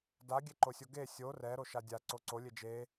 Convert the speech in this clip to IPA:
d a ɡʲ e ǃ o sʲ o ɡ e sʲ o r ɛ ɾ o ʃ a dʲ a ǀ o ǀ o lʲ e d͡ʒ e

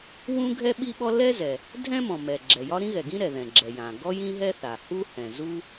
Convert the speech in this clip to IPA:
w ũ˥ ɡʱ ɛ˥ ɓ i˥ ɓ ɔ˥ l ɛ˥ z ɛ˩ | dʱ ɛ̃˥ m ɔ̃˩ m ɛ˩ ɡ͡ǁ ɛ˩ j ɒ˥ ɾ ĩ˥ ɣ ɛ˩ ɡ ĩ˥ ɾ ɛ˩ ð ɛ̃˩ ɡ͡ǁ ɛ˩ j ã˩ ɡ ɔ˥ j ĩ˥ ɦ ɛ˥ θ a˩ h u˥ h ɛ̃˩ z u˥

